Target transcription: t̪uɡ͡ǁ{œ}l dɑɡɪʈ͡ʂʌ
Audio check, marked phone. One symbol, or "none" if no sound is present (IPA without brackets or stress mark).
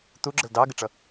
ə